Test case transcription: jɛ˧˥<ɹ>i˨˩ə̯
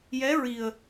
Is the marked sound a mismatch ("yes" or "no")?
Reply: no